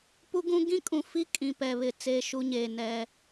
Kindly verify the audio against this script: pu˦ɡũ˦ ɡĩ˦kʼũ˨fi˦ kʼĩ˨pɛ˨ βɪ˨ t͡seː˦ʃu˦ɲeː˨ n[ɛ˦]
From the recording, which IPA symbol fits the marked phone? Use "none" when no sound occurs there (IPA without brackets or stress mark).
ɛ˦